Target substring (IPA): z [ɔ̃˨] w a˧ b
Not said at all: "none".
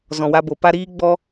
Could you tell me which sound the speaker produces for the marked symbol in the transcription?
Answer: ɔ̃˨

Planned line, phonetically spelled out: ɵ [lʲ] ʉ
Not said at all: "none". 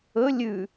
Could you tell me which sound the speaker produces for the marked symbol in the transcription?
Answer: lʲ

